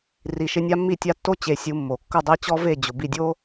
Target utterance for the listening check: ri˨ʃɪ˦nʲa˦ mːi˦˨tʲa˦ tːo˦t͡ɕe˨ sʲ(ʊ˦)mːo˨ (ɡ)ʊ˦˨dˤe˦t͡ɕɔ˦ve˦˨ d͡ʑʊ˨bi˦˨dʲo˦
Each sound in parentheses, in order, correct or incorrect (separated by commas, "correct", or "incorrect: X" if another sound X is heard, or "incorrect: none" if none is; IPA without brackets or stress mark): incorrect: u˦, incorrect: kː